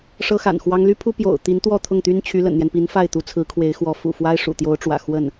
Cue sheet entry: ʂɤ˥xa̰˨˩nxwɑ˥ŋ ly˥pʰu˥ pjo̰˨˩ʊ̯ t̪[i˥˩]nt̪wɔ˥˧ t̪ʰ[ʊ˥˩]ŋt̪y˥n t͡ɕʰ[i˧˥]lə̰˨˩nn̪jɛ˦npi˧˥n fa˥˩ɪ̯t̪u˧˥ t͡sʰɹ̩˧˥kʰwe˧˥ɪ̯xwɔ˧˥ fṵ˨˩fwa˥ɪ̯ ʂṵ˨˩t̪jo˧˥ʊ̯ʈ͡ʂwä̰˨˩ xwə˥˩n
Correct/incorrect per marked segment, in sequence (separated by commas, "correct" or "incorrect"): incorrect, correct, incorrect